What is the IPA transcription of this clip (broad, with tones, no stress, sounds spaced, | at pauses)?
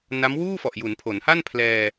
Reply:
n a˦˥ m w uː˥˩ f ɔ˨˩ ʔ j u˩˦ n pʰ o˩˦ n h a˥˩ n pʰ l ɛː˧